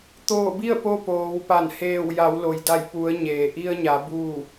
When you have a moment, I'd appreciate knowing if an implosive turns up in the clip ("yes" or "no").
no